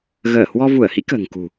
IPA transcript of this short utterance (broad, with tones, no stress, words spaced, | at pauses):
ɣəː˧˩hwɔ˧ vu˧˩ə̯hḭ˧˥ kə̤ː˨˩ŋkṳ˨˩